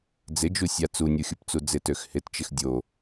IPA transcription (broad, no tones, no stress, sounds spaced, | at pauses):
d͡z ɪ d͡ʒ u sʲ a t͡s u nʲ o xʲ u p t͡s u d͡z ɪ t ø x h ɪ t t͡ʃ ɪ x dʲ o